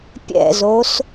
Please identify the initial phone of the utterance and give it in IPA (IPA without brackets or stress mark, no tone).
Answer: pʲ